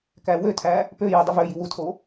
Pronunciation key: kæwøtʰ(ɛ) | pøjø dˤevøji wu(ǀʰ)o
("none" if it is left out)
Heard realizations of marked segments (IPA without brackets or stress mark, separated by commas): æ, tʰ